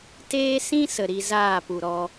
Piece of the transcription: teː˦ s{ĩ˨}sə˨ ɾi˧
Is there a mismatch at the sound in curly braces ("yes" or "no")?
yes